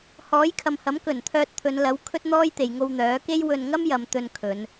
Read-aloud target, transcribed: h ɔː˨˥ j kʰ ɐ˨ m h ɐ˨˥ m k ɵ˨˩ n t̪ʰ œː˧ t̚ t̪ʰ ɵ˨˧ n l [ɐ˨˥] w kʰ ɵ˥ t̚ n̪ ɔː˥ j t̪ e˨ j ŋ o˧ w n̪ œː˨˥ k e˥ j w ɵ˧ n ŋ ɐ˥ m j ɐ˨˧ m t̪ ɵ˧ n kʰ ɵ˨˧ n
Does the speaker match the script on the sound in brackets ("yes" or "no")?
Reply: yes